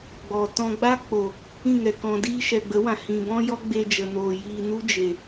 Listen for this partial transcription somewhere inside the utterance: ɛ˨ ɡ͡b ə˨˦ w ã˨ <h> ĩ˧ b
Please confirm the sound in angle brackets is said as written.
yes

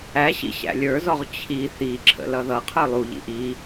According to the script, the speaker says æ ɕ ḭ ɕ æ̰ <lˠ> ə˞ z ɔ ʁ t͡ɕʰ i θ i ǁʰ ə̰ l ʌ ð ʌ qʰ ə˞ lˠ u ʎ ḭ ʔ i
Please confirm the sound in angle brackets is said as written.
no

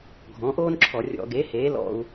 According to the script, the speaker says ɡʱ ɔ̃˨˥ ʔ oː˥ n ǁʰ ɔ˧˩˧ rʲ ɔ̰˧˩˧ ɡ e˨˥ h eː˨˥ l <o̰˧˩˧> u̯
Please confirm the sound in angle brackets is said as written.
no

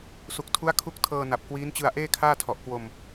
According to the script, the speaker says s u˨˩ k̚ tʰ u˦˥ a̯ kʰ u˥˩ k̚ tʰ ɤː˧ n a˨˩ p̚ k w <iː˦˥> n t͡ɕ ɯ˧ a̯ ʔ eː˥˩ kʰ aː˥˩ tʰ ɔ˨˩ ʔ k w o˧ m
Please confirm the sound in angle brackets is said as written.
yes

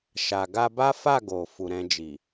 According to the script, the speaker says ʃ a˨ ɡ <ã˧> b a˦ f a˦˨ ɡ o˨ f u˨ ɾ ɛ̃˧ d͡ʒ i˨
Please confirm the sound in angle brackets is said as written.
no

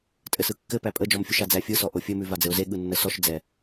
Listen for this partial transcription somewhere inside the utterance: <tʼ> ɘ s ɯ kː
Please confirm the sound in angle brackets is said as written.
yes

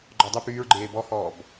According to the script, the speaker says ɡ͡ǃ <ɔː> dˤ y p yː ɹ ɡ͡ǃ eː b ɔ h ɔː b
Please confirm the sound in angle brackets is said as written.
no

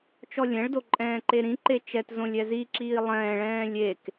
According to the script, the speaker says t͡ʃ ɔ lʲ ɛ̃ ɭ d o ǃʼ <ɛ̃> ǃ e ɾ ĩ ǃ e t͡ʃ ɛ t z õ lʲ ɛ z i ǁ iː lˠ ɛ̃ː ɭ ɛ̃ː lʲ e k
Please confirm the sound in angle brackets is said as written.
no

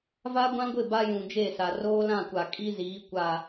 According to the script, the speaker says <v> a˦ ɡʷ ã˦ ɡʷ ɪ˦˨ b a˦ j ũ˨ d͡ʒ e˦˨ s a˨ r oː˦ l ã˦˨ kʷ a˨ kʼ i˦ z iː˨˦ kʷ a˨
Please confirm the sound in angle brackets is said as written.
yes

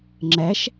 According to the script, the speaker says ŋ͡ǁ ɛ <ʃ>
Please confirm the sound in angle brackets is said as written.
yes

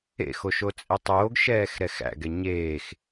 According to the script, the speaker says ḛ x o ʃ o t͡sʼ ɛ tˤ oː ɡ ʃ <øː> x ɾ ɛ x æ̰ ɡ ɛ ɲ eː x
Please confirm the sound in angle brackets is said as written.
no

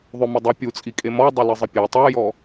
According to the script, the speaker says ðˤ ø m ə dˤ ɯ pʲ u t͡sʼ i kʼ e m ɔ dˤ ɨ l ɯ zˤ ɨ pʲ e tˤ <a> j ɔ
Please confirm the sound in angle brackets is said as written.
yes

